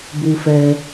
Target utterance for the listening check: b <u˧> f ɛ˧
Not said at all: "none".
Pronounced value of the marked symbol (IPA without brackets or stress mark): u˧